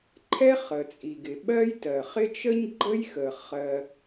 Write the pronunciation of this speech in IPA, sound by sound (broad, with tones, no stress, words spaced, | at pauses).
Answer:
ǃʰɛ˥χə˩t͡sʼi˩ɡɪ˩ ɓɜ˥jtɜ˩χɪ˥ t͡ʃə˥ɲɡ͡ǃə˥jxə˩ χɜ˩